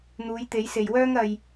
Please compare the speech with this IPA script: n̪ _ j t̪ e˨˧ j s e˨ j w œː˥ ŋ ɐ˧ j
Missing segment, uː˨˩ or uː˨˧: uː˨˧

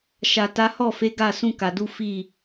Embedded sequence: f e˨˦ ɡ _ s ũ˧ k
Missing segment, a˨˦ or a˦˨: a˦˨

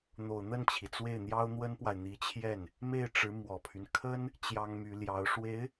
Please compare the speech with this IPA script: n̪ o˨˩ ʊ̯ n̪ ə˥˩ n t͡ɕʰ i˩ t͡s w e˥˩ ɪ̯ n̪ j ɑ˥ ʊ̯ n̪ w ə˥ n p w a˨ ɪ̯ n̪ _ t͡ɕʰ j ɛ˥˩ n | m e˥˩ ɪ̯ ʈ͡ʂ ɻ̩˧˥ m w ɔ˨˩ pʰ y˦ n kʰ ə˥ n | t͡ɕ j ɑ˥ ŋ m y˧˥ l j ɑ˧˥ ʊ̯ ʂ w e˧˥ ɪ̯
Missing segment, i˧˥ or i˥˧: i˧˥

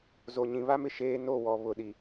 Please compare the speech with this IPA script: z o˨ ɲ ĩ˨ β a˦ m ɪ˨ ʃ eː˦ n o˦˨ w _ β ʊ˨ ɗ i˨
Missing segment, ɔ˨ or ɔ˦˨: ɔ˨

